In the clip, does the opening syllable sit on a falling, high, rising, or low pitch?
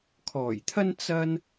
low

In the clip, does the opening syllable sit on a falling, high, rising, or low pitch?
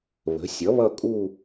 rising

